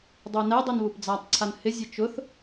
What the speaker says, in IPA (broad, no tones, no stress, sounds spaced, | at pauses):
dˤ o n ɛ dˤ i n β u p d͡z a tˤ ǀʰ a n h ɪ zʲ e t͡ʃ ʊ θ